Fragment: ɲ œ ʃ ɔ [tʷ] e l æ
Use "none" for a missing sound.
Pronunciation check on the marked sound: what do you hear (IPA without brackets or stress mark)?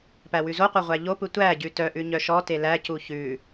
t